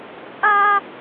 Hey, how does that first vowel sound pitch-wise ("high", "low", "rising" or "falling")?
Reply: high